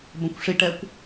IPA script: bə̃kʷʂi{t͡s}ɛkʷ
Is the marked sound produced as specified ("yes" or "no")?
no